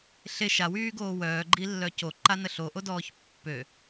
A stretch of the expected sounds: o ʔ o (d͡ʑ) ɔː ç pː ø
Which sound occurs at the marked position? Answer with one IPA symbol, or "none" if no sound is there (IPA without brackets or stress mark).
d